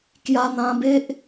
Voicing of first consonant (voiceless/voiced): voiceless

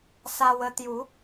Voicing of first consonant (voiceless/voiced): voiceless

